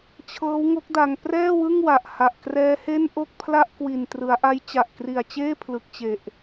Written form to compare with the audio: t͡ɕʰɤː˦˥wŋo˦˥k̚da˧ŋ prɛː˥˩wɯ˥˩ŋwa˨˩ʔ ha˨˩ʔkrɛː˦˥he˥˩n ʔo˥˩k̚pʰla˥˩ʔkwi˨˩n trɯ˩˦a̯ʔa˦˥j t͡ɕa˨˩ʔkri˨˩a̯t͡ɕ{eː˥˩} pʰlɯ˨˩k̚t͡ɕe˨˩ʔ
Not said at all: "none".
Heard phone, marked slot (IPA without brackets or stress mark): eː˥˩